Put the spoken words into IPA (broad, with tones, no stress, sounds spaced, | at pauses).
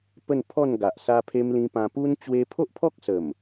p ə˥˧ n pʰ ɔ˥˧ n ɡ a˨ ʔ s a˧ pʰ e˧ m l ĩ˧ p ã˧ p u˦ n t͡ɕ w e˧ pʰ o˦ ʔ pʰ ɔ˦ k̚ s ə˨˩ m